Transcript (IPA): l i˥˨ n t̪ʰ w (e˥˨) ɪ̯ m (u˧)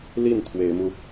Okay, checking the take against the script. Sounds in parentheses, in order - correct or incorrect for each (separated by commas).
incorrect, correct